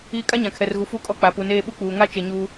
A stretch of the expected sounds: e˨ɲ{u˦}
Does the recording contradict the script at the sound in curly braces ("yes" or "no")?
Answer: yes